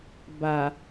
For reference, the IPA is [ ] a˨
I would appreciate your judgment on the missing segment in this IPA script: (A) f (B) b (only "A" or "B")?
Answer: B